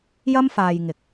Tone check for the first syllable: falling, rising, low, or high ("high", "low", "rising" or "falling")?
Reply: high